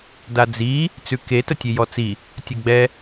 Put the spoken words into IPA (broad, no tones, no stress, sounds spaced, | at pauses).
d a d͡z i | t͡s ʉ k e t ə tʲ e j ɔ t͡s i | tʲ ɐ ɡ͡b ɛ